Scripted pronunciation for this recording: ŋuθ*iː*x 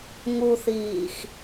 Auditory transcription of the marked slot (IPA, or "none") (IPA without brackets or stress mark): iː